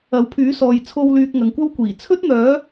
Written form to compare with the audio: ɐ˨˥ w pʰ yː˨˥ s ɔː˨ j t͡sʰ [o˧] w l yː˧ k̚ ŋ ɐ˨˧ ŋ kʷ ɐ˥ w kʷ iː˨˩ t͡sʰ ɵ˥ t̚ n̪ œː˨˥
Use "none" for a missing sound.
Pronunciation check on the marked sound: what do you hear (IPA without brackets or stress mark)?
o˧